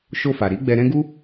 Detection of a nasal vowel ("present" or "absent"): present